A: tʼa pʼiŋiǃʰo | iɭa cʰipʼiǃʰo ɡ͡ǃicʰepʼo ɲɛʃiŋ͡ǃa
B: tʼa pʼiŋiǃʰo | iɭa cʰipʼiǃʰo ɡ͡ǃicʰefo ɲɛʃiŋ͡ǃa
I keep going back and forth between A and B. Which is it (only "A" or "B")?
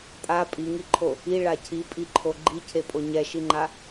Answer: A